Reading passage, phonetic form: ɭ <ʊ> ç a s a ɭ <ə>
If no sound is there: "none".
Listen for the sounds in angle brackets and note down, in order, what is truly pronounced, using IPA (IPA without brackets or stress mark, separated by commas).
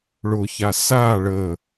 ʊ, ə